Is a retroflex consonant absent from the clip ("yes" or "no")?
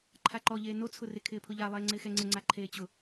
yes